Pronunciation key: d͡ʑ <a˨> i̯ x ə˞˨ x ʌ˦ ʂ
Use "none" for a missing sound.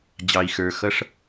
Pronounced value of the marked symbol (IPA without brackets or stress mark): ɑ˨